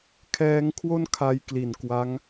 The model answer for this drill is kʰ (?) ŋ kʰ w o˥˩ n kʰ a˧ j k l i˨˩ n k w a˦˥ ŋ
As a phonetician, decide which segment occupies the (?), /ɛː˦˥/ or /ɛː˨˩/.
ɛː˦˥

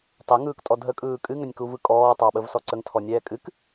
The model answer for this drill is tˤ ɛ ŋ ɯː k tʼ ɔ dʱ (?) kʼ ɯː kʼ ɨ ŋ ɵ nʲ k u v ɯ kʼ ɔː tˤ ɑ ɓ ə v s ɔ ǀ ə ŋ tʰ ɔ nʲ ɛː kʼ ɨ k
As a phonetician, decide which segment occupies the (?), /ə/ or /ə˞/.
ə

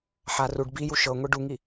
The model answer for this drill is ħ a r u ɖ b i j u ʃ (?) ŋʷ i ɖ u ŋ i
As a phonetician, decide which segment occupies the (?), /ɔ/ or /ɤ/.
ɤ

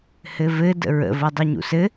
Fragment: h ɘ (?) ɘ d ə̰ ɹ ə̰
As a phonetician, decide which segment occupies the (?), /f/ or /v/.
v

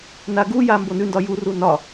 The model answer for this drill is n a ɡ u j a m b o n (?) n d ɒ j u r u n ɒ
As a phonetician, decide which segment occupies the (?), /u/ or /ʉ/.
ʉ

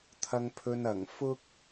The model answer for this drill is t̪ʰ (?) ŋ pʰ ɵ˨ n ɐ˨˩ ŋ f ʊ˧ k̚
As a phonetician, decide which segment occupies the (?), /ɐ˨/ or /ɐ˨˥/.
ɐ˨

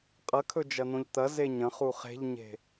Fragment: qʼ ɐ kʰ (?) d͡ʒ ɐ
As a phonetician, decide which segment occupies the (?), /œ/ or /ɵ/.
ɵ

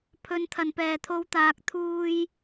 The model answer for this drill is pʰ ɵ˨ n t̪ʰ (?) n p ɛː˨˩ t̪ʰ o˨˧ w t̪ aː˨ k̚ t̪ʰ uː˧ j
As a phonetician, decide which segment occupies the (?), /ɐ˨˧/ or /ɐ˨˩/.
ɐ˨˩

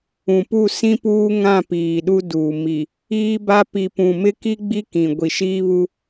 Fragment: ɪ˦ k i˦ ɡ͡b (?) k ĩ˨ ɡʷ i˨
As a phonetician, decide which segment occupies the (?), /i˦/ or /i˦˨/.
i˦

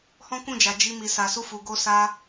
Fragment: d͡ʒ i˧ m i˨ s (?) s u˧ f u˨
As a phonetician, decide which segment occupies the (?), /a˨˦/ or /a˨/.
a˨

